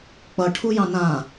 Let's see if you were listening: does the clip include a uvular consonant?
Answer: no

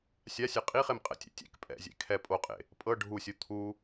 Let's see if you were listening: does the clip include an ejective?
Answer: yes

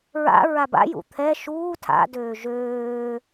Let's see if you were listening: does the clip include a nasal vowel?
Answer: no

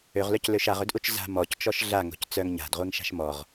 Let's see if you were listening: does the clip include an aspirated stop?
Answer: no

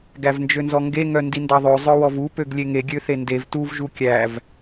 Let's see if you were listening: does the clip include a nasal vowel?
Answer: no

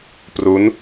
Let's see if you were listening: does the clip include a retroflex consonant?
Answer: no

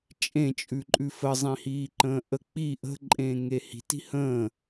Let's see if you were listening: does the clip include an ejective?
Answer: yes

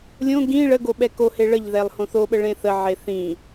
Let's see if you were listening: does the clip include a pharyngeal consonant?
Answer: yes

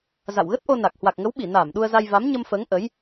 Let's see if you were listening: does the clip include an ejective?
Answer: no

